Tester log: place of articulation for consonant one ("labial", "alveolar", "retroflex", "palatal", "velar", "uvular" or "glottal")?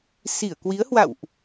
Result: alveolar